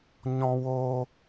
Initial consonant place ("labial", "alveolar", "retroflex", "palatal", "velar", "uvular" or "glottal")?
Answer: palatal